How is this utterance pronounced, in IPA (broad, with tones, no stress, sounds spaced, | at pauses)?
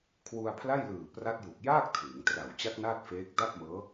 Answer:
kʰ w u˧ a̯ pʰ l a˥˩ j l ɯː˨˩ p r a˦˥ t̚ j u˨˩ k̚ j aː˥˩ k̚ tʰ ɯː˩˦ ŋ t r a˨˩ w t͡ɕ a˦˥ k̚ n aː˥˩ t̚ f eː˦˥ k̚ d a˥˩ p̚ m ɤː˦˥